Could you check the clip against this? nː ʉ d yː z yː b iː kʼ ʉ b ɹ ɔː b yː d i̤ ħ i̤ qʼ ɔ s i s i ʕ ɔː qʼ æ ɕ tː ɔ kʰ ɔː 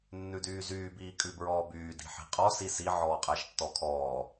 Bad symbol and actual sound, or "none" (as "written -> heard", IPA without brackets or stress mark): ɕ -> ʃ